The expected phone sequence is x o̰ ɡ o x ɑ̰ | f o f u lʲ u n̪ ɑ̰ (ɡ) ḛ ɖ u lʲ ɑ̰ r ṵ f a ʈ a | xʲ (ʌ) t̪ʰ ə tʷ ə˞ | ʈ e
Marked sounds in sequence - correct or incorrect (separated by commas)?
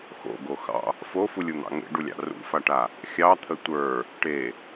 incorrect, incorrect